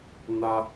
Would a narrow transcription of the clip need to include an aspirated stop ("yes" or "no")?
no